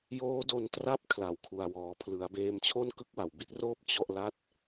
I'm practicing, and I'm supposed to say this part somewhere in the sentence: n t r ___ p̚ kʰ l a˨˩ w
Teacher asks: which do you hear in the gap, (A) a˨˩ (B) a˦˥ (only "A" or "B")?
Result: B